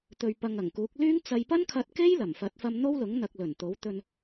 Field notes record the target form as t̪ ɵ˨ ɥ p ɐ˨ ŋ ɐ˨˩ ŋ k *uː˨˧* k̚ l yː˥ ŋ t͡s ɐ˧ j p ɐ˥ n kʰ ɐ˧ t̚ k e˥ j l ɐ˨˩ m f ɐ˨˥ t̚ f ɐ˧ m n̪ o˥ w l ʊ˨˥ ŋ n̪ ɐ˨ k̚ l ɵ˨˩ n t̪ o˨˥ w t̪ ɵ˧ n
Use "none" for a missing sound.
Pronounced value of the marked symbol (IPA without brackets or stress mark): uː˨˥